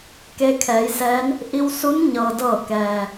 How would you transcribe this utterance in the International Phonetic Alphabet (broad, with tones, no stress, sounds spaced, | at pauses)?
k eː˧ kʰ ɛː˩˧ j s ɛː˧˥ n | ʔ i˧ w s u˧˥ n ɲ ɤː˩ d ɤː˧˩ k ɛː˩